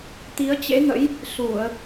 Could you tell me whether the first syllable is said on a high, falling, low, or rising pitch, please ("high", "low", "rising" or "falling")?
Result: rising